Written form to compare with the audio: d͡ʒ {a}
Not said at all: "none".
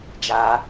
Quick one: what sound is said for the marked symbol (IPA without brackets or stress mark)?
a